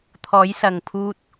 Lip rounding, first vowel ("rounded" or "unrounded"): rounded